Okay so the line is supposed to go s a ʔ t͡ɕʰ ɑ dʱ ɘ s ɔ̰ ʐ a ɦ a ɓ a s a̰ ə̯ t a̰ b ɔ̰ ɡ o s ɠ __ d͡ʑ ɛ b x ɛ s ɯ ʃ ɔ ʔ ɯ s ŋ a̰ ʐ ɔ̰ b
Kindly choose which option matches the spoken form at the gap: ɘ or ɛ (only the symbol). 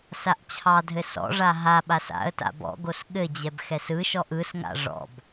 ɘ